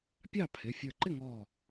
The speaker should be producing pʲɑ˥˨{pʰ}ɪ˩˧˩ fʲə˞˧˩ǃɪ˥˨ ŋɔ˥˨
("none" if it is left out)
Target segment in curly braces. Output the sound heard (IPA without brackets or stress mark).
pʰ